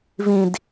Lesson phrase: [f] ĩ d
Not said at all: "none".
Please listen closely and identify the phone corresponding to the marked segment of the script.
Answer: v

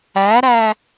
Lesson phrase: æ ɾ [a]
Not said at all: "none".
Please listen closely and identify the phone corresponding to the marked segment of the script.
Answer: æ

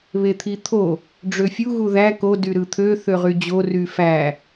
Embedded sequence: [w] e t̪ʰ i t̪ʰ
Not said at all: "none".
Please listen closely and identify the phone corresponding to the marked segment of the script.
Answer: β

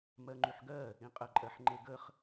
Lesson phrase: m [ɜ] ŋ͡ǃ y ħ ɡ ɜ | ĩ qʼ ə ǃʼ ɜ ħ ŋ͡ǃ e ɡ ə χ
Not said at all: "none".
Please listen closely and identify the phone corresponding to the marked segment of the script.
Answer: ɜ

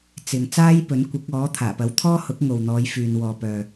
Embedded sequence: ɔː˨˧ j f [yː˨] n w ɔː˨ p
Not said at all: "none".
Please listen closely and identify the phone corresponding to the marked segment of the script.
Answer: yː˨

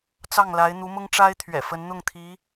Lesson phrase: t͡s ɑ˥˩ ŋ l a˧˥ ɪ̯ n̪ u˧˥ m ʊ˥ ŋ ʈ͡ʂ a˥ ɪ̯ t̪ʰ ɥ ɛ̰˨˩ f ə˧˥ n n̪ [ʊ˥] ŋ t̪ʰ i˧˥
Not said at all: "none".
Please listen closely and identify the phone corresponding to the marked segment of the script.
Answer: ʊ˥˩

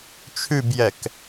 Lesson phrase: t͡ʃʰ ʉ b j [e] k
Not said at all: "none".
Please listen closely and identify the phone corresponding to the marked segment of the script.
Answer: ɛ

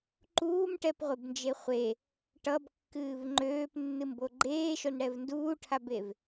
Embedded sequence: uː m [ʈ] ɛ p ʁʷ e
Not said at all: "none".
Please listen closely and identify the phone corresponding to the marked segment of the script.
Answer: ʈ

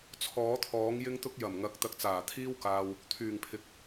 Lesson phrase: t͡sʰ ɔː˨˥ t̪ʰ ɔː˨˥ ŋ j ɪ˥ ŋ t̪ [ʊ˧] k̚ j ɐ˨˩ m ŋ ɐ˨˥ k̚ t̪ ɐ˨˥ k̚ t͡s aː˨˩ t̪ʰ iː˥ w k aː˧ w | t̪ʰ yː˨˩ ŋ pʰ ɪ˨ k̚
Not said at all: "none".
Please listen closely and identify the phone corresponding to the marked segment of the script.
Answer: ʊ˥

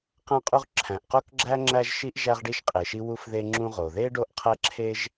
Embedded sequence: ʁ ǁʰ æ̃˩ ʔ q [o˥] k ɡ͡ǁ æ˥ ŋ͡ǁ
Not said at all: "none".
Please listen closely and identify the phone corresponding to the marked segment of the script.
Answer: o˥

